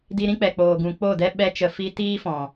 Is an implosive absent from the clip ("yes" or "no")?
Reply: no